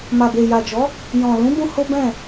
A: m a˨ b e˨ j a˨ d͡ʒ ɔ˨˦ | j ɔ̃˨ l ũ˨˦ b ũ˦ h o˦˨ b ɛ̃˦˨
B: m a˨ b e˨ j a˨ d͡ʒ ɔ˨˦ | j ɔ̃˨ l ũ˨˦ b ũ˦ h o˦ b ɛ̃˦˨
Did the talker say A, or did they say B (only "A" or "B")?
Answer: B